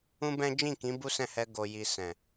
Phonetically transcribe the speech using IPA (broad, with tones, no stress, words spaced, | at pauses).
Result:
ũ˦bɛ̃˦ d͡ʒĩ˦˨kĩ˨˦ bu˦sɛ̃˦˨hɛ˧ ɡo˨ji˨ sɛ̃˨